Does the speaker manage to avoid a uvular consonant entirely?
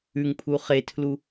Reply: no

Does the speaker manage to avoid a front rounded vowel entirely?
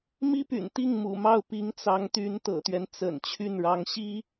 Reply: no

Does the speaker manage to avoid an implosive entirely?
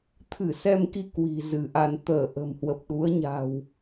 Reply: no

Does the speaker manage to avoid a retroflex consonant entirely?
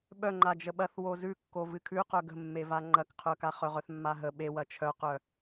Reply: yes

